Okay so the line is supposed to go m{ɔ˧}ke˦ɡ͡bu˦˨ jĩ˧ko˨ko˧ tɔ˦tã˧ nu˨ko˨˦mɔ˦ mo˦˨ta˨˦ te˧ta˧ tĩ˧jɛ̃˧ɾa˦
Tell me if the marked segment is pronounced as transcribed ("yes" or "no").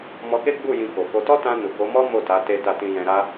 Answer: yes